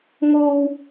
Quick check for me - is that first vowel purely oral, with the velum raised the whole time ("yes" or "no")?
yes